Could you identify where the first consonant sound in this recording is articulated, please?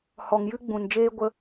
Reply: glottal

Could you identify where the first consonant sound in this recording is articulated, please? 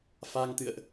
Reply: labial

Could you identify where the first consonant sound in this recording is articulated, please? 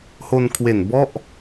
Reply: glottal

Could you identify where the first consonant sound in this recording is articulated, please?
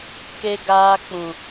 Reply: velar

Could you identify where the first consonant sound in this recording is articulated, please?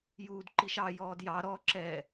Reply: palatal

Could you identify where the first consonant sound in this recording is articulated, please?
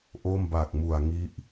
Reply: glottal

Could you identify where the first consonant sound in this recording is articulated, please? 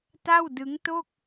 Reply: alveolar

